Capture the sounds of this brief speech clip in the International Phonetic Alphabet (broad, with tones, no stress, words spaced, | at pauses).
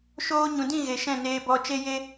ʃoː˧ɲũ˨dĩ˦˨ ɣe˨ʃɛ̃˦˨neː˧bɔ˧ t͡ʃe˦je˦